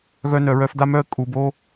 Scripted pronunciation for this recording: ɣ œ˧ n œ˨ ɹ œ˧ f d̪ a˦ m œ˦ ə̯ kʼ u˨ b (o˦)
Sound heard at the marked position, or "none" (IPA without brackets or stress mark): o˦